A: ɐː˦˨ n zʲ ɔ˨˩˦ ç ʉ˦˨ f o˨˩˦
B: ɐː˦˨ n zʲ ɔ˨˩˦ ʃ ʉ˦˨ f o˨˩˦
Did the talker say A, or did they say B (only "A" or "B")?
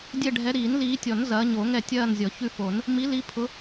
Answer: A